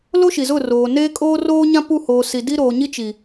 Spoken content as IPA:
l o˦ ʃ i˨ z ʊ˦˨ r oː˨ n eː˦ kʼ oː˦ r oː˦ ɲ ã˦ p u˦˨ h oː˨ s i˨ d i˦ ɾ oː˨ ɲ i˦ t͡ʃ i˨

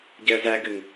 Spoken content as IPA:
ɟ ɛ ə̯ z æ ɡ ɘ ŋ

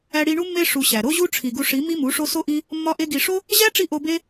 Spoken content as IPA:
æ˧ ɽ i˧ ɳ u˦ mː e˧ ʂ u˧ ɕ æ˨ ɾ o˦ ʑ u˦ ʈ͡ʂʰ i˨ ɡ u˧ ʂ i˨˦ m i˦ m u˨˦ ʂ o˦ s o˦ ʔ i˦ | mː ɒ˦ ʔ e˦ ɡ i˧ ʂ o˦ | ʑ æ˦ ʈ͡ʂ i˦ ʔ o˧ b e˦

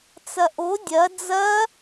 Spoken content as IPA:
t͡s ɐ ʔ o dʲ ɐ d͡z ɐ

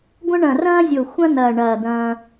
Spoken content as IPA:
ɡʷ ɐ̃˥ ɳ ɐ̃˧˩ r ɐ̃ː˥ zʲ o˧˩ xʷ ɐ̃˥ n̪ ɐː˧˩ ɳ ɐː˧˩ d̪ ɐ̃ː˧

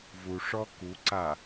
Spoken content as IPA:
v u ʂ ɔ k u ǀ a

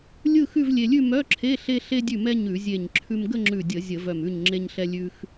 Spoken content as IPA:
lʲ ɯ˥˧ x ʉ˥˧ v lʲ e˧ lʲ ʉ˥˧ m œ˧˥˧ ǁʰ e˧˥˧ ɬ e˧ ɬ e˧ dʲ ʉ˧˩ m ɛ˧ ɲ ʉ˧˩˧ zʲ e˧˩ ɲ ǁʰ ʉ˧ m ɡ ə˥˧ ŋ͡ǁ ʉ˧˩ dʲ ə˧˩˧ zʲ ə˧˩˧ v œ˧˩ m ʉ˧˩ ɲ ŋ͡ǁ e˧ ɲ ɬ ɛ˧ lʲ ʉ˧ x

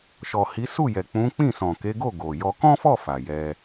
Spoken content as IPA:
ʃ ɔ˨ h i˨˦ s u˦˨ j ɛ˨ k͡p ũ˨˦ k͡p ĩ˦˨ s ɔ̃˨ k e˨˦ ɡ o˦˨ ɡ o˨ j ɔ˧ k ɔ̃˦ f ɔ˦˨ f a˨ j ɛ˧

